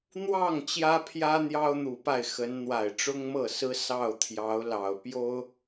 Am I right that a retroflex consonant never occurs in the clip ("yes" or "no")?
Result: no